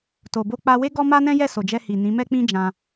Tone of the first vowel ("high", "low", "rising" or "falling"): low